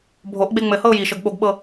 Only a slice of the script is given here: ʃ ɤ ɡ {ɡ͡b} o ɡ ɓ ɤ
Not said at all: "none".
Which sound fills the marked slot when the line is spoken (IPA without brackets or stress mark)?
ɓ